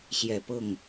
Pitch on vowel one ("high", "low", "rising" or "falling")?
low